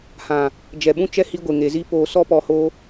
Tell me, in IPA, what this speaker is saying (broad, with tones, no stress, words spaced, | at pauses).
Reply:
hã˨ | d͡ʒɛ˨ɓũ˦t͡ʃɛ˦ hi˧ɡʷe˨ ŋe˨zi˦poː˧ sɔ˦pɔ˧hoː˦